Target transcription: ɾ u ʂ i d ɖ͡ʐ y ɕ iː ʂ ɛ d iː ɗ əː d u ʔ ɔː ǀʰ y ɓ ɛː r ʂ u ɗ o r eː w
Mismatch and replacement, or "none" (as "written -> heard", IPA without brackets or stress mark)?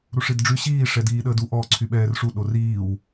eː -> iː